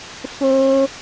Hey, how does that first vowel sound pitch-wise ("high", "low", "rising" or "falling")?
high